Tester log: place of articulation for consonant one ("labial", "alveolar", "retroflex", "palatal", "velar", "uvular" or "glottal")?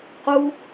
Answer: uvular